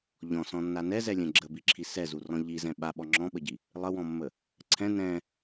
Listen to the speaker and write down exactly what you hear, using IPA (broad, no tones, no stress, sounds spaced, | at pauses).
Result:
ʎ ɔ̃ s ɔ̃ nː a n ɛ z ɛ lʲ ɛ̃ ɡ͡ǁ ə b i ǁʰ i s ɛ z u r ɔ̃ ʎ i z ɛ̃ ɓ a ɓ ɔ ŋ͡ǁ ɔ̃ ɓ ə ɟ i | lˠ ə w ɔ̃ mː ə | ǀʰ ɛ̃ n ɛ̃